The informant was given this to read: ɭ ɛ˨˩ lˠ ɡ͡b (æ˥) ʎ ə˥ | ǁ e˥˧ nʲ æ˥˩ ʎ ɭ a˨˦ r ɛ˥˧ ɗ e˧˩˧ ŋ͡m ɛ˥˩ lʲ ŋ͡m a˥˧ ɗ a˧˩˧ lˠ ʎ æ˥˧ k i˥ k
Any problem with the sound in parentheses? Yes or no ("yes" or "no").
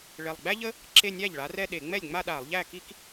no